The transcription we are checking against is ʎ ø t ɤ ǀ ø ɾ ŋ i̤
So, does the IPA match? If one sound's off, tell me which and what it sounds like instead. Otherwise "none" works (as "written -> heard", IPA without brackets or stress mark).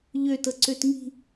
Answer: ɾ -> t